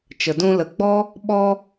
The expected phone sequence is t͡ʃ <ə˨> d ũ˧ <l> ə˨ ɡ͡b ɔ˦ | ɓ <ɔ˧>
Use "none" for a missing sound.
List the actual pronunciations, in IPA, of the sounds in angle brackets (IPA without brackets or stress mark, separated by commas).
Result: ə˨, l, ɔ˧